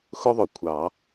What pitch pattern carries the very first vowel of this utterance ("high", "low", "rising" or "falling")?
high